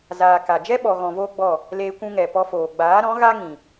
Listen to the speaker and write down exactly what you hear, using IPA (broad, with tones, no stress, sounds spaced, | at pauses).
z aː˨ k a˨ d͡ʒ ɛ˦ ɓ ɔ˨ ɣ ɔ̃˨ v oː˧ ɡ͡b ɔ˦˨ | l eː˦ kʷ ũ˦ ŋ ɛ˨ p ɔ˧ f oː˨ ɡ͡b aː˨˦ ɾ ɔ̃˨˦ ɣ a˦ ŋ ĩ˨